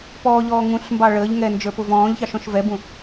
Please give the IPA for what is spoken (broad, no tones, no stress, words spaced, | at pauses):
pɔːʎɔː ŋũɬmbɑ ɭəːʎŋɛ nd͡ʒə˞pʊvɔ̃ːʎçɑʃ ɔ̃ʃvɛbũ